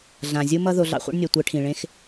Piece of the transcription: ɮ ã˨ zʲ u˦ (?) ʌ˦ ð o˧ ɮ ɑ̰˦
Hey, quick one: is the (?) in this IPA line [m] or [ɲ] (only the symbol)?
m